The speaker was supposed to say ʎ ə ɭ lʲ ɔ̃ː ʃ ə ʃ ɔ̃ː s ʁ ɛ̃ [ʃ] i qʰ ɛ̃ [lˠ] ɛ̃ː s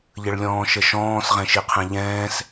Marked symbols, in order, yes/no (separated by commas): yes, no